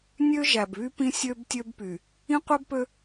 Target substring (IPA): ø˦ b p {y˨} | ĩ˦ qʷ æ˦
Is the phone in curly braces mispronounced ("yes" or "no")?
no